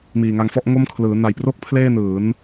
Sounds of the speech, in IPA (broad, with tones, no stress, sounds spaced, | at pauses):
m iː˨˩ ŋ a˧ ŋ f ɔ˥˩ ʔ ŋ o˥˩ m kʰ l ɯː˩˦ n a˨˩ j p r o˥˩ k̚ pʰ l eː˥˩ n ɯː˩˦ n